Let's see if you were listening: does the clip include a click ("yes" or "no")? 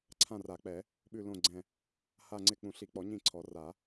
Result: yes